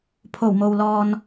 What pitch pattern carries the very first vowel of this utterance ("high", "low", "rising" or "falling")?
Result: low